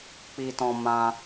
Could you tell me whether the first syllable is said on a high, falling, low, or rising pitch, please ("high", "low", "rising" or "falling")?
high